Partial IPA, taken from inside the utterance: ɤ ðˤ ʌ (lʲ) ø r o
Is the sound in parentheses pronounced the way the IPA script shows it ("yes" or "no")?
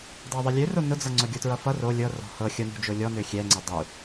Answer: yes